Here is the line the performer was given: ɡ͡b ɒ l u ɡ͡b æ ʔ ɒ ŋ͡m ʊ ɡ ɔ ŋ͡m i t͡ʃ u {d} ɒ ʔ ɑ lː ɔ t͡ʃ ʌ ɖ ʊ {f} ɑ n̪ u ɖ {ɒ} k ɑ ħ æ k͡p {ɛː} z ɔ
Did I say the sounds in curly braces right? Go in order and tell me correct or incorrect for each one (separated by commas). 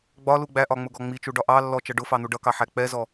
incorrect, correct, incorrect, incorrect